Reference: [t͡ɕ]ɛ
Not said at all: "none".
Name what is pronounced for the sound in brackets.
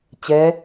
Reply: t͡ɕ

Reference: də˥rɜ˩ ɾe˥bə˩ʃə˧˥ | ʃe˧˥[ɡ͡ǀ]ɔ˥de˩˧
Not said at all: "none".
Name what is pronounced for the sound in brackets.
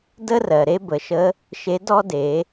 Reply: d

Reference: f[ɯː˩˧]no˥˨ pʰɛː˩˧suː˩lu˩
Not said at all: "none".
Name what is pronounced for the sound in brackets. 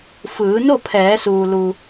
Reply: ɯː˩˧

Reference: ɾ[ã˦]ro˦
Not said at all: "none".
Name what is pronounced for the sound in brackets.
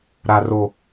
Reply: a˦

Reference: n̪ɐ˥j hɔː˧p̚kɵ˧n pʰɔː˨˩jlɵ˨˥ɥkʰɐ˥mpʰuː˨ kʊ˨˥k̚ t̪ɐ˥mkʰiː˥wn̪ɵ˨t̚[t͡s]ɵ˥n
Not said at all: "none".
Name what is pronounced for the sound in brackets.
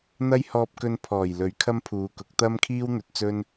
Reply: t͡s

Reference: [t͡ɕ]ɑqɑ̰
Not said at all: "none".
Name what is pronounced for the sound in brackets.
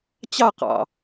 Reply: t͡ɕ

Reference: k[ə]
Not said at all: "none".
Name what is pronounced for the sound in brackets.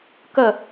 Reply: ə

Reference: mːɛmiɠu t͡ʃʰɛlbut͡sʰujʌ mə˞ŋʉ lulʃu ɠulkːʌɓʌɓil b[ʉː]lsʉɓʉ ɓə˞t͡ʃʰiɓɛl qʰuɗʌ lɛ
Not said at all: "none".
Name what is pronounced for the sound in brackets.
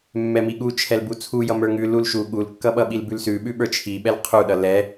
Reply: ʉ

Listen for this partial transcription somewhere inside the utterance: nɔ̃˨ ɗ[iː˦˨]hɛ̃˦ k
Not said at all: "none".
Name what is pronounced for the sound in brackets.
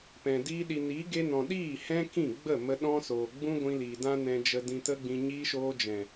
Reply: iː˦˨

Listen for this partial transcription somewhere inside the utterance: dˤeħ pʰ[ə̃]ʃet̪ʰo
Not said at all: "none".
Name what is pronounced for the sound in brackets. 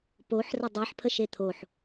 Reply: ə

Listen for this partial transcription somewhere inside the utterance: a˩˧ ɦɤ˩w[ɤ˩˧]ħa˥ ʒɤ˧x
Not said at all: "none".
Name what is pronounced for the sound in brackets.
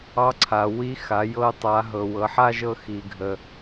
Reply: ɤ˩˧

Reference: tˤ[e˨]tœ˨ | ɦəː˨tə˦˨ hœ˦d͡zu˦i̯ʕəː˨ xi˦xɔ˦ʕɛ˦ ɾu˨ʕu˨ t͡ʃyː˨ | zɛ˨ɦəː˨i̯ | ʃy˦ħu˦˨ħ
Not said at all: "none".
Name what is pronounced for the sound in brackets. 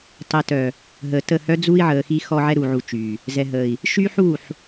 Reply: ɛ˨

